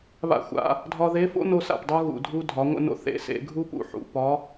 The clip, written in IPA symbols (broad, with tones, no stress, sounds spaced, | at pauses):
β a̰˧ xʷ a̰˩˧ | dʱ ɒ˧ ð e˧˥ f o̰˥ n o˧ s a̰˩ p dˤ u˧ ɣ ṵ˩ dʱ u˧ dʱ ɒ˩˧ ŋʷ ə̰˧ n o̰˧ θ ḛ˩˧ s ḛ˩˧ ɡʱ u˥ p ṵ˩˧ ħ ṵ˩ p ɒ˧˥